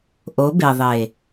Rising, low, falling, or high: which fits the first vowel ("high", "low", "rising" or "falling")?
rising